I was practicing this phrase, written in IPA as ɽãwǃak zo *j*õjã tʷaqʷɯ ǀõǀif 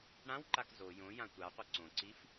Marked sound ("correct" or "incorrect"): correct